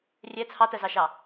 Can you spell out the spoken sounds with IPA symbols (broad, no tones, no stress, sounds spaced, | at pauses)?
rʲ ɛ t͡sʰ ɑ t ɜ z ɑ ʃ ɑ